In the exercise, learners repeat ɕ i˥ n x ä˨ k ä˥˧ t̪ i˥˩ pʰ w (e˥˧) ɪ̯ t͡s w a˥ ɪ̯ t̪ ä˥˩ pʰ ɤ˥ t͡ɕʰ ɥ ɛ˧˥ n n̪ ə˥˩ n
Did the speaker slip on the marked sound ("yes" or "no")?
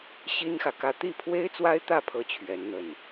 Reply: yes